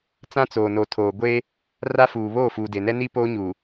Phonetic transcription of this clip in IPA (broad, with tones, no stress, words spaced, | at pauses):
t͡sã˦t͡soː˨no˨ tʰoː˨ ɡʷeː˦ | ra˦fuː˨ βoː˦˨fuː˨de˨nɛ˦ ni˦poː˦ɲuː˨